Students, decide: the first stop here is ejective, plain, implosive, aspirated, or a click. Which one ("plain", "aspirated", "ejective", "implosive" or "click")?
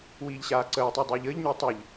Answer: click